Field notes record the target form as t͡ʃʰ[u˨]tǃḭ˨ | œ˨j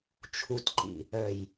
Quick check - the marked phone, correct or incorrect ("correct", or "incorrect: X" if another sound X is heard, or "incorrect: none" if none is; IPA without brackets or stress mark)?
correct